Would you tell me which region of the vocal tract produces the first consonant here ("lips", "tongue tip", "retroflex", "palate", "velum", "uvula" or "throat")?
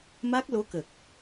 lips